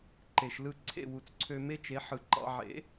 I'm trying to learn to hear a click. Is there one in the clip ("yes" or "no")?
yes